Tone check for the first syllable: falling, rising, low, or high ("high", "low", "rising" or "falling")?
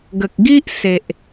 low